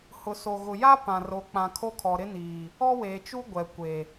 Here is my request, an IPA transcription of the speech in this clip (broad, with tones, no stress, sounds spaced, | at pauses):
h ʊ˨ s o˨ ɣ ʊ˨ j a˦ p ã˨ r o˨˦ k͡p ã˨ kʰ o˦ kʰ ɔ˨ ɾ ɪ˦ n iː˨ | ɔ˦ w eː˨ t͡ʃ u˦ ɡʷ ɛ˨ kʷ e˨